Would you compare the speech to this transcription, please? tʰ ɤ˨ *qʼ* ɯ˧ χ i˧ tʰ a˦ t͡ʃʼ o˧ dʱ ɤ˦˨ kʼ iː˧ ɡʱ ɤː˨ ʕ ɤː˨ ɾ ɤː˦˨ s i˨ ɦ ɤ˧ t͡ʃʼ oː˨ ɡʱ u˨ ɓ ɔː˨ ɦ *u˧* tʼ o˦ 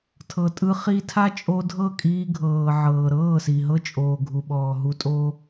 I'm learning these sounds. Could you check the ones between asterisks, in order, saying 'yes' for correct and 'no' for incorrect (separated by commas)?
no, yes